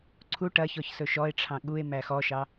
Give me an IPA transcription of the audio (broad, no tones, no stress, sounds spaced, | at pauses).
ǀʰ u ʈ ɐ ç ɔ ç s ɵ ʃ ɔ e̯ ʈ͡ʂʰ ɑ̃ ɠ u e̯ m æ x ɔ ʃ ɑ